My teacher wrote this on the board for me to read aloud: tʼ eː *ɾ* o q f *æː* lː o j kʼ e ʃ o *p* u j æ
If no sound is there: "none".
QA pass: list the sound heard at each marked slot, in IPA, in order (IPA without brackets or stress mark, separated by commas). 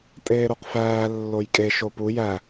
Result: ɾ, æː, p